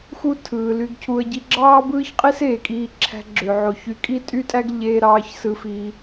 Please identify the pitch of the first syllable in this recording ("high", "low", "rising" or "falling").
high